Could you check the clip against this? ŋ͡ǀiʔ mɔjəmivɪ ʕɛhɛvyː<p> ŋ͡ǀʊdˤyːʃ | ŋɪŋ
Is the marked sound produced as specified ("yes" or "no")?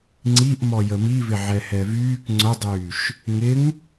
no